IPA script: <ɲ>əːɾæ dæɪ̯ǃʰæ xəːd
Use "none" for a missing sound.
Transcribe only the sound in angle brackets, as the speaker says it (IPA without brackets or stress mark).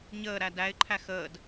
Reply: ɲ